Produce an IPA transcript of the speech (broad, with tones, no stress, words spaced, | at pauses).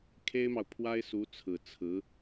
kʰe˥ɪ̯mɑ˨ʊ̯ pʰwa˥ɪ̯ su˧˥t͡sʰɹ̩˨˩ t͡sʰɹ̩˧˥